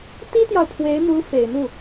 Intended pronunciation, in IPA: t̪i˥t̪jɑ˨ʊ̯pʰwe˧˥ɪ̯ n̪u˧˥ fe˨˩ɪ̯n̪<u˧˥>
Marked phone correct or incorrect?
incorrect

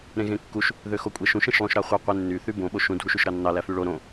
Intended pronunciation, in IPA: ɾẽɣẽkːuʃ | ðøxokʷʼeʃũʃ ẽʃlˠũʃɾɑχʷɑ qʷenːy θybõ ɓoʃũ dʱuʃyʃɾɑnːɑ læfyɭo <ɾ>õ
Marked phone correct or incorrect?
correct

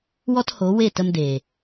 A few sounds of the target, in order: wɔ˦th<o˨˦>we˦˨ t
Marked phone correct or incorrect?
correct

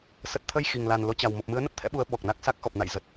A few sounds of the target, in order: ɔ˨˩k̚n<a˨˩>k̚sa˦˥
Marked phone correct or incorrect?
incorrect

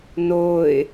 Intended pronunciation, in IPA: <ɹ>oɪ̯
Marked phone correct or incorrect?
incorrect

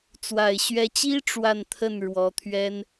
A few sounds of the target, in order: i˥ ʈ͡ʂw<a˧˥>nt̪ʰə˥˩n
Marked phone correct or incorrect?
incorrect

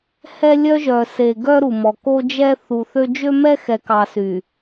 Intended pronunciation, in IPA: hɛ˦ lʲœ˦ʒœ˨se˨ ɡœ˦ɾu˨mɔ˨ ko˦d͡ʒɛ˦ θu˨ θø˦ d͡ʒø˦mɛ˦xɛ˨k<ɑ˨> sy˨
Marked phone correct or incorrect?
correct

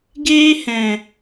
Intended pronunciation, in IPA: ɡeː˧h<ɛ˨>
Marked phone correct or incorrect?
incorrect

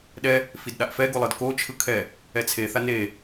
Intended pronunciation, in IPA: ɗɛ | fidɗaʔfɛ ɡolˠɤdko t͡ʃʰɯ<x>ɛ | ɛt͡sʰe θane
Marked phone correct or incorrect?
incorrect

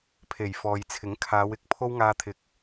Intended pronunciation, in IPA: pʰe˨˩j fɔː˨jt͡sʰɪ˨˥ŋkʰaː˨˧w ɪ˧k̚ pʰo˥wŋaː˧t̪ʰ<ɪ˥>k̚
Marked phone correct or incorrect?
incorrect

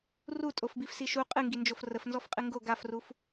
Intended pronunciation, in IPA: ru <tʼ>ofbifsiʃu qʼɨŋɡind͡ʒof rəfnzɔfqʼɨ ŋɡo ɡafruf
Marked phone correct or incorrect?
correct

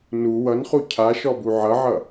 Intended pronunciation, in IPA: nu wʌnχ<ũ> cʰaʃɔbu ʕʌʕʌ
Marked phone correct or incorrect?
incorrect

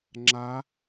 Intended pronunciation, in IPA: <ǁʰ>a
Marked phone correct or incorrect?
incorrect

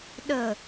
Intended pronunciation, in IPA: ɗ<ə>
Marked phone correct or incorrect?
correct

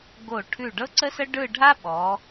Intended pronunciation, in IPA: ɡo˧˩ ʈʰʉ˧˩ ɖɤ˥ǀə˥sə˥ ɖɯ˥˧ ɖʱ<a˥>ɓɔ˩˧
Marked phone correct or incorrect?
correct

